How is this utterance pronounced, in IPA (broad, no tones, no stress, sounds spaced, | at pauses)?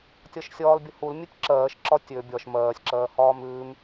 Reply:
tʲ ɒ ʃ sʲ ɒː l bʲ ə h u l mʲ ʉ tʲ ǁ ɜː ʃ ǁ ɒ tʲ ø bʲ ɒ ʃ m ɜː sʲ ǁ ɜː h ɒː m ʉː m